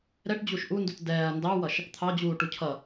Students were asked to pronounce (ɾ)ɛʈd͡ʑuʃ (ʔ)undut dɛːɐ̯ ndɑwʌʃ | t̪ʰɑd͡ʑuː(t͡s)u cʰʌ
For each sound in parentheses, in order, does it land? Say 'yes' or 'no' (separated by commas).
yes, yes, no